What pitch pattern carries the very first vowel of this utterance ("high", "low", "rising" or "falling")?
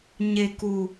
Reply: low